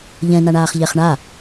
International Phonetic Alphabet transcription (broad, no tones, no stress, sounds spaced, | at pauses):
ʎ ɛ̃ n a ɳ aː χ ʎ ɛ χ ɳ a